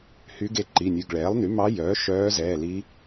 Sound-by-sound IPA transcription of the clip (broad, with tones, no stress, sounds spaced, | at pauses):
h y˧˥ ɡ e˦˨ ǃ i˩˧˩ nʲ ʉ˩˧˩ ɡ ɭ ɛː˩˥ lˠ n y˩˥ m ɑ˧˥ j œː˩˥ ʃ œː˧˥ z ɛː˩˧˩ l i˧˥